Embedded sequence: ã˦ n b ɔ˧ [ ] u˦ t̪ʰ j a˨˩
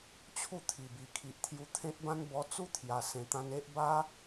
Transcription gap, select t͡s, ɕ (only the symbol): t͡s